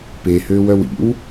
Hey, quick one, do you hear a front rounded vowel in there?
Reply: yes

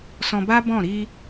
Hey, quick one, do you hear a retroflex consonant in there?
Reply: no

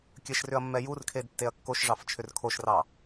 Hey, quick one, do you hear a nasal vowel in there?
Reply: no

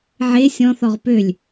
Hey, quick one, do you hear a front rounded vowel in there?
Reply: yes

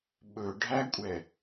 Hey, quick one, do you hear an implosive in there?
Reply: yes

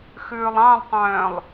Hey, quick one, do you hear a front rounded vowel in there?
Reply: yes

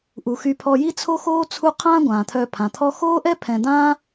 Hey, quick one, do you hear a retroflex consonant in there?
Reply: no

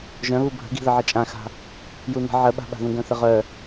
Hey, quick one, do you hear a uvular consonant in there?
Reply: yes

